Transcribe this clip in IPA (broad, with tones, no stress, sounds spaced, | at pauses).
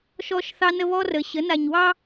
ʃ ɔ˦ ʃ θ ɑ˦ n ə˦ β ɔ˦ r ə˨ ɕ ə˨˦ n a˨ ɲ w ɑ˦